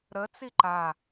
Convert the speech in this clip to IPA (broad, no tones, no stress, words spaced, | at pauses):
ɾə t͡siǃa